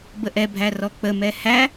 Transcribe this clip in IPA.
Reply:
b ə ʔ ɛ bʱ æ r ɔ k͡p ə m ɛ h æ

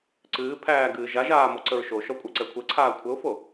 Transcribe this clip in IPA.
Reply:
ǀ ɨː pʰ æː ɡ ɨː ʒ a ʒ aː m ɔ ǀ ə ɹ ʃ o ʃ ɔ kʷʼ æ ǀ ɛ kʷʰ ɛ ǀʰ aː kʷʰ ə ʊ̯ f o

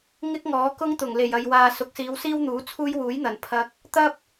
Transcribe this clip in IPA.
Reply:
ŋ ɪ˥ k̚ ŋ ɔː˨˥ k ʊ˥ ŋ t̪ ʊ˨˩ ŋ l e˨˩ j ɐ˨ j w aː˨ s ʊ˨˥ k̚ s iː˨˧ w s iː˥ w n̪ uː˨˥ t͡sʰ uː˥ j w uː˨˥ j n̪ ɐ˨˩ n pʰ ɐ˧ k̚ | t̪ ɐ˥ p̚

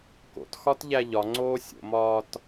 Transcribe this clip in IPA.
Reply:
k o̰ t x ɒ t ʎ æ ʎ ɒ ŋ͡ǀ oː sʲ o̰ m ɒː t

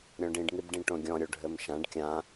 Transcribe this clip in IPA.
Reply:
ɾʲ ɔ̃ ɖ ĩ ɖ ŋ i b ɖ ĩ ʈ õ ɡʲ ɔ̃ ɾʲ o ɖʱ ɘ m ʃ ã ɖ kʲ ã

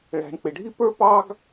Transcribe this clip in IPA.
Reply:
ɭ æ̤˩ ɳ k͡p ɪ˩ ɖʱ i˥ p ə˞˥ p ɑ˥ ɡ

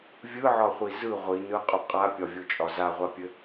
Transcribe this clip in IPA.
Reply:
vʲ ɯ ʕ ɒ χʷ i z ɯ ʁʷ i n ɯ qʼ o qʼ a pʲ ɒ vʲ o t͡ʃʼ ɒ z a ʁʷ a pʲ ɘ

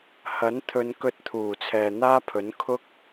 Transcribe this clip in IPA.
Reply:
h ɐ˨˥ n t̪ʰ ɵ˨˧ n k ɵ˧ t̚ t̪ʰ uː˨˩ t͡sʰ ɛː˨ n̪ aː˥ pʰ ɵ˨˥ n kʰ ʊ˥ k̚

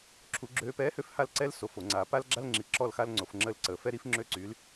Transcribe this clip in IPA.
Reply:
ǁʰ u˧˥ ɡ͡ǁ øː˧ p ɛː˧˥ h ø˧ f h a˥˧ l ǀ ɛ˥ l s o˧ f o˧˩˧ ŋ͡ǀ aː˧ p a˥ l ɡ͡ǁ a˥ l ŋ͡ǁ i˧ ǁ ɔ˥˧ l x a˥ l ŋ͡ǀ o˧ f ŋ͡ǁ ə˥˧ l ǀ ə˧ f ɛ˥ ɾ i˥ f ŋ͡ǁ ø˥ ǀ y˧˥ l

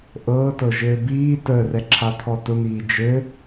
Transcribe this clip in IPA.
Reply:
ʔ ɤː t ɤ ʒ ɘː b iː t əː r ɛ ǁʰ a t̪ʰ ɔ t ʊ n̪ iː d͡ʒ ɘ

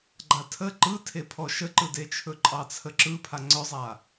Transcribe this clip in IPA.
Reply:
ɡ͡ǃ a tʰ ə ǃ ɯ tʰ e pʰ ɔ ʃ ə ǃ ɯ d e t͡ʃʰ ɵ ǃʼ ɑ t͡sʰ ə ǁ ɯ pʰ a ŋ͡ǀ œ zˤ a

